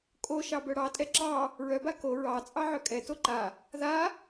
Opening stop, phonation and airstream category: ejective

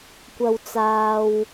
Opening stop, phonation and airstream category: plain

